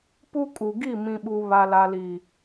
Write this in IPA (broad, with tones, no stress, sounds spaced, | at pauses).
p u˦ kʼ u˨ ɡ i˦˨ m ĩ˨ ɓ u˨ β a˨ l a˨ l i˨